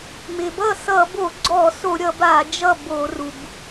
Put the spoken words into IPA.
m ɪ˩ b ʌ˥˩ s ʌ˧˩˧ b o˧˩˧ ɡ͡ǀ ɔ˧˩˧ s o˧˩˧ ɾʲ ʌ˧˩˧ b a˧˩˧ d͡ʒ ʌ˥˩ b o˧˩˧ r u˩ b

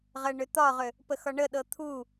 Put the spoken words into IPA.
ʁ ɜ ɳ ʏ t̪ ɒ ʁ ʏ | p ə x ɒ ɳ ə ɗ ɤ t̪ʰ u

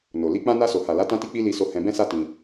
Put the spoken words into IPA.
n o˨ l i˧ k͡p ã˧ n a˧ s o˨ h a˨ l a˨˦ t ã˧ t i˧ k͡p i˧ l i˧ s o˧ h ɛ̃˧ b ɛ̃˦ s a˦ t ĩ˧

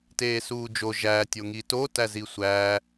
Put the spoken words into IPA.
t eː s uː d͡ʒ o ʒ æ tʲ o ŋ i t o t æ z i sʷ æː

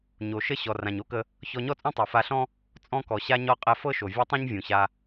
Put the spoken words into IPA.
ɲ o˩ ʃ ə˥ ɕ ɔ˩ r ã˩ ɲ o˥ k ə˧ | ç ɔ˧ ɲ ɔ˥ t͡sʼ ũ˥ tˤ ɤ˩ f a˧ ɬ ɔ̃˥ | t͡sʼ ɔ̃˧ k ɔ˩ ɕ a˧ ɲ ɔ˧ qʼ ɛ˧ f ɤ˥ ʃ o˩ vʲ ɛ˥ tˤ ũ˥ ɲ vʲ ũ˩ ɕ a˧

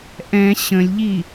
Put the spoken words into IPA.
ʔ ɛ̃ ɕ ə̃ lʲ ʎ i

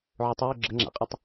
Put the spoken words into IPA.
ʕ ʊ tˤ ə j ʊ ɡ͡ǁ ə ŋ͡ǁ a̰ qʼ ʊ tˤ

